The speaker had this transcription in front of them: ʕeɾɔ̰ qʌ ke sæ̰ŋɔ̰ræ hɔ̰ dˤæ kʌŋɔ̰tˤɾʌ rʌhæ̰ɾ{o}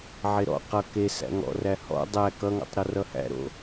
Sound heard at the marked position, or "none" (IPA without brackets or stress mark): o̰